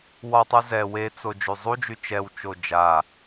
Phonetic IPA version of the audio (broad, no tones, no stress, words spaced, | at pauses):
wɒtˤu zɛ wet͡so d͡ʒyzˤud͡ʒy t͡ʃɛwt͡ʃo d͡ʒa